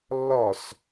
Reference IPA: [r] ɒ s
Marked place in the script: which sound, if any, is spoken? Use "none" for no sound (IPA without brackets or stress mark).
lː